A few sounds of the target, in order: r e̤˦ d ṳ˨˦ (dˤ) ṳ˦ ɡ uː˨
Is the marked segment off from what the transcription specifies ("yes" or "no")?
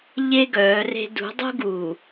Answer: no